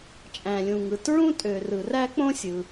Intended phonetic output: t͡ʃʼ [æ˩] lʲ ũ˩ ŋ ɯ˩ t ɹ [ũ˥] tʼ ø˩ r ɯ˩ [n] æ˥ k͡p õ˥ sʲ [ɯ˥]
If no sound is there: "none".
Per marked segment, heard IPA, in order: æ̃˩, ũ˥, r, ɯ˩

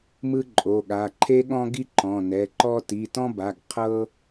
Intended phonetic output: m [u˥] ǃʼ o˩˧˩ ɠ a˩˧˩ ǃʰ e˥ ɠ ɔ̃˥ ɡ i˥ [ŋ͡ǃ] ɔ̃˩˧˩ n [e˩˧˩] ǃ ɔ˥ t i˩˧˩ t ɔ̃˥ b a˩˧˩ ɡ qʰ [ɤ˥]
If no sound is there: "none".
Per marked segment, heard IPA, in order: ɯ˥, ǃ, ɛ˩˧˩, ɤ˥

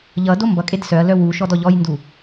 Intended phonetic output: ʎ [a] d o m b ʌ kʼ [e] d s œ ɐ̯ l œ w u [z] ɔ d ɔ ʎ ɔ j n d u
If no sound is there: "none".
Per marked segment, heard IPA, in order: ʌ, e, ʃ

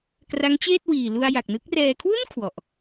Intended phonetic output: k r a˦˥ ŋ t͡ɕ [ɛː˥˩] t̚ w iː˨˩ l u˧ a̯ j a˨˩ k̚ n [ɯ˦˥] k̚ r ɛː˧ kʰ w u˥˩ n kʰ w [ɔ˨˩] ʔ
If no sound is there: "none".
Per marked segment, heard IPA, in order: eː˥˩, ɯ˦˥, ɔ˨˩

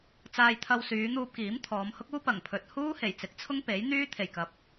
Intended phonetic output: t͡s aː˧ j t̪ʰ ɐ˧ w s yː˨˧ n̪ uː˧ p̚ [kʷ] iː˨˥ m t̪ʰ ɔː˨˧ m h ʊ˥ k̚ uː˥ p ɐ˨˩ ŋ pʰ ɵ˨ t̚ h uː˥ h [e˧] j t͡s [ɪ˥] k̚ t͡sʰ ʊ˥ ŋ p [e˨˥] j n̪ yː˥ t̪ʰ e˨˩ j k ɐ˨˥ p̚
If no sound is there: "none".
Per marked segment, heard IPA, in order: k, e˨˩, ɪ˨˥, e˨˥

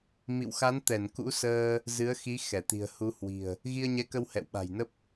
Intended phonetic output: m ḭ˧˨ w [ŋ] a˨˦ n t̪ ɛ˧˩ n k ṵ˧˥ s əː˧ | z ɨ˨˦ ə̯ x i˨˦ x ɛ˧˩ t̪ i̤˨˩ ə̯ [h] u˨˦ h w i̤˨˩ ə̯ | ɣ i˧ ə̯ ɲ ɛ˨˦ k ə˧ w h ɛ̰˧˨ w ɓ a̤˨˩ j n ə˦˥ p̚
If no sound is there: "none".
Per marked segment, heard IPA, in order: x, h

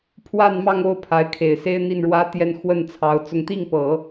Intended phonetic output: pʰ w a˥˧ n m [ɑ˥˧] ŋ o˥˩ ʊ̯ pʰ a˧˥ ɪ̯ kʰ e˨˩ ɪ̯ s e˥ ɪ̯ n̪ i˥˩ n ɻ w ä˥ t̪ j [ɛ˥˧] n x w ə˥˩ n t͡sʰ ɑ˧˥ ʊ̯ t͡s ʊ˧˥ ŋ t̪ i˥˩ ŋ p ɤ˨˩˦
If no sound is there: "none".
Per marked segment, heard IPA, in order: ɑ˥˧, ɛ˥˧

